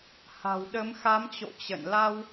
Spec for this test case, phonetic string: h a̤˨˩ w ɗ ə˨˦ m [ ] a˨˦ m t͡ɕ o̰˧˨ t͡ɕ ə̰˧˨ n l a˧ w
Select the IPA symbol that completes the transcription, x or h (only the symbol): x